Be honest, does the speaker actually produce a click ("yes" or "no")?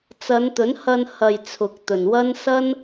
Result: no